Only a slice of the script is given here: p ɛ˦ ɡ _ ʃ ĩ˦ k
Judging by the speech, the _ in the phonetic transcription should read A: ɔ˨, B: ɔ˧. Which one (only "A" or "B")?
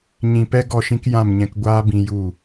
B